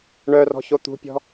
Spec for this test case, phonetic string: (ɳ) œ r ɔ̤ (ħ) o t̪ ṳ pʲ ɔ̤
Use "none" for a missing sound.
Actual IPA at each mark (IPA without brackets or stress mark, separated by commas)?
ɳ, ç